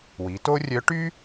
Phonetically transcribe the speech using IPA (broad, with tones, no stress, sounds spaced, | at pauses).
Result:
w i˩˧ t o˥ rʲ œ˧˥ ʈ y˥